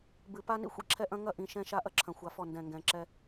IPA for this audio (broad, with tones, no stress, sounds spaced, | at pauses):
b ɨ˨ p a˦ n ḭ˦ xʷ ḭ˦ ǁʰ ɛ˦ ʔ ɐ̃˦ ŋ ɐ˦ ʔ ĩ˨ ʃ ɛ̃˦ ʃ a˦ ʔ ɐ˦ ǁʰ ɐ̃˨ xʷ a˨ f ɔ˦˨ n d ɛ̃˨ ŋ ɡ ɛ̃˨ ǁ ɛ˦